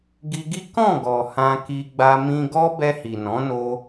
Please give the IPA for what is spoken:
ɡi˧ɡi˦ kɔ̃˦˨ɡɔ˨ hã˧ki˧ɡ͡ba˧ mĩ˧ɡɔ˦ bɛ˧hi˨nɔ̃˨˦no˧

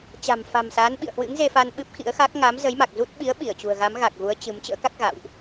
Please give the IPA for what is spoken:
t͡ɕa̤˨˩mfa̤˨˩m sa˨˦n ɓḭ˧˨ə̯hwɨ̰˧˥ŋ ze˧fa˧n ɓɨ˦˥p̚xḭ˧˥ə̯xa˦˥k̚ ŋa˨˦mzə˨˦jma˨˩k̚ zu˦˥t̚ ɓi˨˦ə̯ ɓi˧˩ə̯t͡ɕṳ˨˩ə̯ɣa˨˦m ɣa˨˩k̚ɣu˨˦ə̯ t͡ɕɨ˨˦m t͡ɕə̰ː˧˥ ka˦˥k̚ɣa̰˧˨wʔ

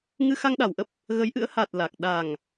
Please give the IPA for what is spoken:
ŋɨ˧xa˧ŋɗa˨˩wʔə˦˥p̚ | ɣə˨˦jʔɨ̰˧˥ə̯ha˨˩t̚ la˨˩k̚ ɗa˨˩ŋ

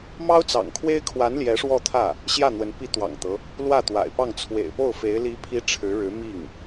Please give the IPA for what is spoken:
mɑ˥ʊ̯t͡sɑ̰˨˩ŋkʰwe˥ɪ̯kʰwa˧˥n ljɛ˧˥ʂwɔ˥˧t̪ʰä˥˩ | ɕjä˥˩n̪wə˧˥n pi˧˥t̪wɑ̰˨˩ŋt̪ɤ˦ | lwä˥˩t̪wa̰˨˩ɪ̯pɑ˥˩ŋ t͡sʰwḛ˨˩ɪ̯po˥˩ʊ̯ fe˧˥ɪ̯ li˧˥ pʰi˥ ʈ͡ʂʰɻ̩˧˥ɻɻ̩˧˥ mi˥˩ŋ

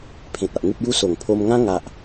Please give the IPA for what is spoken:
pʰẽ˨t̚a˨ʔ ŋu˦p̚ju˦ so˨˩ŋ pʰo˧mŋã˦ ŋa˦ʔ

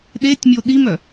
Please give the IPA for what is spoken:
ɗetʲmʲo ɗimœ

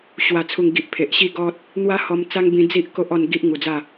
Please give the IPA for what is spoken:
ɕwa˨˩t͡sʰu˨˩ŋɡi˨ʔ pʰe˨ʔɕi˦ɡɔ˦t̚ | n̪wa˦hɔ˧m t͡sa˦ŋbĩ˧ d͡zi˦ʔ ko˦ʔɔ˧n ɡi˦ʔŋu˨˩d͡za˥˧

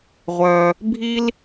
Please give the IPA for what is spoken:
ʁʷœ˩ | bʱi˥l

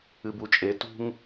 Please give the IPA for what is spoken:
ɨbut͡ʃʼe tṳŋ

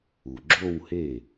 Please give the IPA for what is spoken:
u˩ɡ͡ǁo˥˧whe˥˩

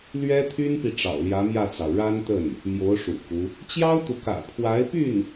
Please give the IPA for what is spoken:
lɥɛ˥t̪ʰy˥npi˨ ʈ͡ʂɑ̰˨˩ʊ̯ljä˧˥mjä˥˩t͡sɑ˩ʊ̯ ɻa˥nt̪ə˥˩n | mjo˧˥ʊ̯ʂṵ˨˩ku˦ | t͡ɕjɑ˥ʊ̯t̪u˨kä̰˨˩ pʰwa˧˥ɪ̯py˥˩n

